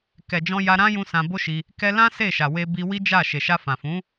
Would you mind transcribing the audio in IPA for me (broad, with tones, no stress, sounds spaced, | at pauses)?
k ɛ˨ d͡ʒ ɔ̃˧ j a˧ ɾ ã˦ j ũ˦ s ã˧ b o˦ ʃ i˧ | k ɛ˧ l ã˦ s e˦˨ ʃ a˨ w e˧ b i˧ w i˦ d͡ʒ a˦˨ ʃ e˨ ʃ a˧ f ã˨ f ũ˨˦